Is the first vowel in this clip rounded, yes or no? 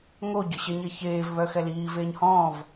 yes